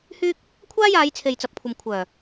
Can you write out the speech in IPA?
h yː˥ k̚ | kʷʰ aː˥ j aː˨˧ j t͡sʰ e˨ j t͡s ɐ˨ p̚ kʷʰ ɐ˨ m kʷʰ œː˨˩

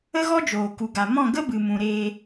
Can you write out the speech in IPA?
ə˦ ɣ ɔ˦ d͡ʒ oː˨ k u˨ ɡ a˨ m ɔ̃˦˨ ɡ ə˦ b ɨ˨ m ũ˨ ɾ eː˧

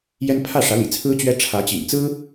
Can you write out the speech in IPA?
j ɛ˥ n pʰ ä˥˩ ʂ ä˧˥ l ḭ˨˩ t͡sʰ ɹ̩˥ t͡ɕ ɥ ɛ˥ ʈ͡ʂʰ ä˧˥ t͡ɕ ḭ˨˩ ŋ t͡s ɹ̩˥

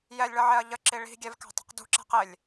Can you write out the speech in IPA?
j ɛ lʲ ɭ ʌ ʕ ɛ ɐ̯ ʎ ə ǁ i ɭ i̤ ɡʲ ɛ v k æ̤ tˤ ə̤ q d ṳ ǁ æ̤ q ɪ lʲ

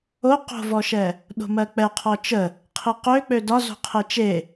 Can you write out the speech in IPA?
o q o̤ v ɔ ʃ ɛ | ɗ o̤ m ɜ k͡p ɛ qʰ ɔ t͡ʃ ə | qʰ i q ø k͡p ø d ɒ z o̤ qʰ e t͡ʃ e

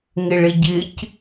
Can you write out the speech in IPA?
ŋ ɪ ɭ ɪ ɟ ɪ c

